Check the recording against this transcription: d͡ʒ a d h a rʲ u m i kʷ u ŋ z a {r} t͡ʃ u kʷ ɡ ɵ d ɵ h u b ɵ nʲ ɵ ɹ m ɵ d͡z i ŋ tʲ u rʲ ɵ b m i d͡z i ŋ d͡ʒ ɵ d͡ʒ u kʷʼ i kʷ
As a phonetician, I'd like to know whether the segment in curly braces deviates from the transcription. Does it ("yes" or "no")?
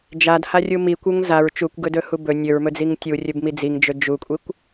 yes